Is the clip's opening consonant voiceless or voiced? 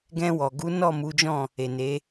voiced